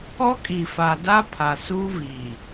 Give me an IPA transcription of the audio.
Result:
ɔ˦ kʼ i˨ f a˨ d a˦ pʰ a˨ s uː˦ v iː˨

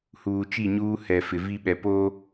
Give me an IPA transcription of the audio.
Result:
h uː˨ t͡ʃ i˦˨ ɲ uː˦ h ɛ˨ f ɪ˨ v i˦ ɓ ɛ˨ p oː˦

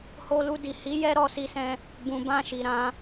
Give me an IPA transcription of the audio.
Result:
h o˧ l u˧ d i˨ h i˨˦ j ɛ˦ ɾ ɔ˧ s i˧ s ɛ̃˧ | b ũ˨ b ã˧ ʃ i˨ ɾ ã˧

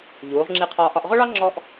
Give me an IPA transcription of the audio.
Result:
ʎ uː˩˧ ʁ ŋ͡ǁ i˧ qʰ ɒː˧ ʔ ɒ˧ ʔ ʁ ʊ˥ ɭ ɑ˥ ŋ͡ǁ ɔ˥ ʔ

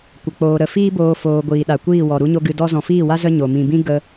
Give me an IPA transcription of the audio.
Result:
kʷ ə˧ k͡p oː˧ ɾ ə˨ f iː˦ b oː˧ f oː˧ ɡʷ iː˨ ɗ a˨ kʷ iː˦˨ w ɔ˨ ɾ u˦ ɲ o˦ ɡ ɨ˧ d ɔ˦ z ɔ̃˨ f iː˦˨ w a˦ z ə˦ ɲ o˨ m ĩ˨ b ĩ˦ ɡ ə˦

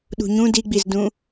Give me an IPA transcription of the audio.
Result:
ɗ ṳ ɲ ũ d i ɡ͡b i z d ũ

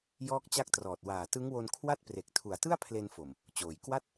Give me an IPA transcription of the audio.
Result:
j ɔː˦˥ k̚ t͡ɕ a˦˥ k̚ t r ɔː˨˩ t̚ w aː˨˩ t ɯ˦˥ ŋ w o˧ n kʰ w a˥˩ t̚ p r e˨˩ k̚ tʰ u˨˩ a̯ t ɯ˥˩ a̯ pʰ l e˧ n f o˨˩ m | t͡ɕ oː˨˩ j k w a˥˩ t̚

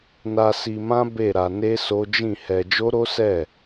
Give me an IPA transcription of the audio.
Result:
n a˧ s i˧ m ã˦ b e˦˨ ɾ a˧ n e˦ s o˦ d͡ʒ ĩ˦˨ h ɛ˧ d͡ʒ o˦ ɾ o˦ s ɛ˦˨

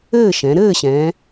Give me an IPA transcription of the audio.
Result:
ɘː˥˨ ʃ ɛ̃˩˧ ɾ ɘː˥˨ ɕ ɛ̃ː˩˧

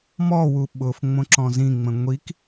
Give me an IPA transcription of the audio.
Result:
m ɔ w u ɓ ʊ f ŋ͡m õ ǁ ɔ̃ z ĩ ŋ͡m ə̃ ŋʷ i k

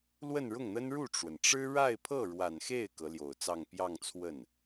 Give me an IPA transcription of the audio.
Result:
l w ə˥˧ n ɻ ʊ˥˩ ŋ n̪ ə˥ n ɻ u˥˩ ʈ͡ʂ w ə˩ n ʈ͡ʂ ɻ̩˥ ɻ a˥˧ ɪ̯ pʰ ɤ˥˩ ɻ w a˨˩ n x e˥˩ ɪ̯ k ɤ˧˥ l j o˨˩ ʊ̯ t͡s ɑ˥˧ ŋ p j ɑ˥˧ ŋ t͡sʰ w ə˥˩ n

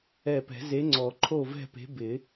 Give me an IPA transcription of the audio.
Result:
ɛ˧˩ p ɛ̤˨˩˦ z e˨˥ ŋ͡ǀ ɔ˨˩˦ ǃʰ o˥˨ v ɛ̤˥˨ p e̤˨˥ b ɪ˨˩˦

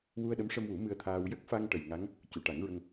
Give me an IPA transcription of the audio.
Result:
w u˧ ə̯ ɗ ə˧˥ m ʂ ə˧ m w u˨˩˦ m ɨ˧ ə̯ t̪ʰ aː˧ w j ə˦˥ k̚ f a˧ ŋ ʈ ə˨˩ j ŋ a˧˥ ŋ | c u˨˩˨ ʈ a˨˩˦ ŋ ɹ ə˧ ŋ

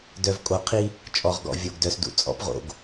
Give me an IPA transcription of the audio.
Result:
d œ˨ v kʼ o˨ qʰ i˦ | t͡ʃʼ ɔ˨ ʁ ɡ ɔ̰˨ vʲ o˨ ɡ d œ˨ s d ṵ˨ t͡sʼ ɔ̰˦ p ʁ o̰˨ ɡ

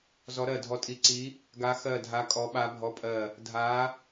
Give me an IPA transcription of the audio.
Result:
z ɔ˧˥ ɾ ɜ˦˨ dʱ ɔ˧˥ tʼ i˧˥ ǀ i˧˥ | ɡ a˧˥ x ɜ˦˨ dʱ a˧˥ kʼ ɔ˧˥ ɓ a˧˥ bʱ ɔ˧˥ pʼ ɜ˦˨ | dʱ a˧˥

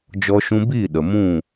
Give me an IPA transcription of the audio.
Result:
d͡ʒ ɔ˧ ʃ ũ˧ b iː˦˨ ɗ ə˨ m ũ˦˨

